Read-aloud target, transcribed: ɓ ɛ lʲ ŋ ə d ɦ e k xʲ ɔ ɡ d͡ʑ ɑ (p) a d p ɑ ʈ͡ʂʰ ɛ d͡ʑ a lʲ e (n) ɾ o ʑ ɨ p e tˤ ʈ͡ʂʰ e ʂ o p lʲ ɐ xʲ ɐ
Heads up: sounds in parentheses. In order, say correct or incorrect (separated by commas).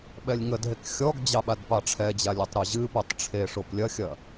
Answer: incorrect, incorrect